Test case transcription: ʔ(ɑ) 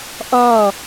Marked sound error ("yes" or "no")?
yes